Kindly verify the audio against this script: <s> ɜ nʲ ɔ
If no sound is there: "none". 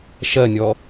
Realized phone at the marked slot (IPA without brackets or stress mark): ʃ